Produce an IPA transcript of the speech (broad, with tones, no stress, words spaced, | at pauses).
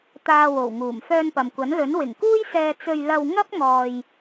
t̪aː˧wo˨˩wŋuː˨˩m fœː˧npɐ˨mkʷɐ˨˥nlɵ˨˥n wɪ˨˩ŋkuː˥jsɛː˧ t͡sɵ˧ɥ lɐ˧w ŋɐ˥p̚ŋɔː˨j